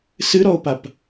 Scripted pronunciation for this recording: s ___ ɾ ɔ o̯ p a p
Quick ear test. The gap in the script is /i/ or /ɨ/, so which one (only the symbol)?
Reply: ɨ